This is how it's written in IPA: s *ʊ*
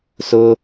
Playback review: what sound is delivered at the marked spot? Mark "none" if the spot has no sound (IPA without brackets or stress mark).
ʊ